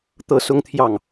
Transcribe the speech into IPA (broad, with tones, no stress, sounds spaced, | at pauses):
t̪ ɤ˥˨ s ʊ˦ ŋ t̪ʰ j ɑ˥˨ ŋ